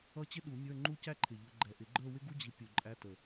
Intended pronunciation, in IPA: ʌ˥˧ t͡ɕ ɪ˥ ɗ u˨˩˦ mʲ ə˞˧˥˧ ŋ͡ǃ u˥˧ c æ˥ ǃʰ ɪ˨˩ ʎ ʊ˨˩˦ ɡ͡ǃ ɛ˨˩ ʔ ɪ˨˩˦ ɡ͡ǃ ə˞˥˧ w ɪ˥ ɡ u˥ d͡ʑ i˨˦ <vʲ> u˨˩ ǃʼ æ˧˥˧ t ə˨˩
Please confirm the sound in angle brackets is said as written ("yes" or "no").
no